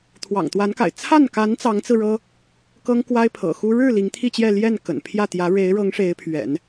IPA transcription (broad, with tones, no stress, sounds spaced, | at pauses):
t̪ʰ w ɑ̰˨˩ ŋ t̪ w a˧˥ n k a̰˨˩ ɪ̯ t͡sʰ a˥˩ n k a˧˥ n t͡s ɑ˧˥ ŋ t͡s ɹ̩˧ ɻ ɤ˥ | k ɤ˥ ŋ k w a˥ ɪ̯ pʰ ɤ̰˨˩ x u˥ ɻ ɻ̩˥˩ l i˧˥ ŋ t̪ʰ i˥˧ t͡ɕ j ɛ˥˧ l j ɛ˥˩ n k ə̰˨˩ n pʰ j ä˥˩ t̪ j ä˧˥ ɻ e˧˥ ɪ̯ ɻ ɤ˧˥ ŋ ʂ e˧˥ ɪ̯ pʰ ɥ ɛ̰˨˩˦ n